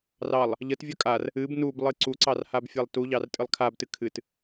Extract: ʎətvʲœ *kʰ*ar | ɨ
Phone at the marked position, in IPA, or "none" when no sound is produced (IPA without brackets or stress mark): kʼ